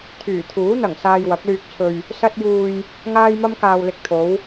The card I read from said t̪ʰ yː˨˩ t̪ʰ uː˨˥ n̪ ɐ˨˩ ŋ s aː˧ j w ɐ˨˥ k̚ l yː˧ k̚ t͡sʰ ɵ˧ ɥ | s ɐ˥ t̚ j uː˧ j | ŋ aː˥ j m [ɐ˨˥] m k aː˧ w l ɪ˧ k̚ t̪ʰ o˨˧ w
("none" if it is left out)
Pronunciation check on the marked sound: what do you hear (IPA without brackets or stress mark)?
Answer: ɐ˥